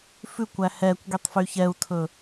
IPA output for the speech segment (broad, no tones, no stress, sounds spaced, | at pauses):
f ʉ kʷ æ h ɛ kʷ ɡ y tˤ f y ç ɛ u̯ tʰ ɵ